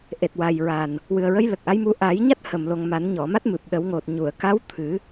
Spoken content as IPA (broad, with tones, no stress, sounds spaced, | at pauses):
ʔ e˨˩ t̚ w a˨˩ j ɹ a˨˩ n | w ɨ˨˩ ə̯ ɹ ə˧˥ j l ə˨˩ k̚ ʔ a˧˥ j m u˧˥ ʔ aː˨˩˦ j ɲ a˦˥ t̚ h ə˨˩ m l o˨˩ ŋ m a˨˩˦ n ɲ ɔ˨˩˨ m a˦˥ t̚ m ɨ˨˩ p̚ ɗ ə˨˩˦ w ŋ o˨˩ t̚ ɲ u˨˩˨ ə̯ k a˧˥ w t̪ʰ ɨ˨˩˦